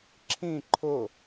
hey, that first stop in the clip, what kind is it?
click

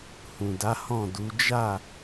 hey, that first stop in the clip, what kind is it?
plain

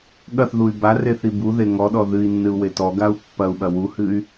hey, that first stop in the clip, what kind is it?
implosive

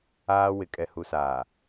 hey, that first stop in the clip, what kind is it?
ejective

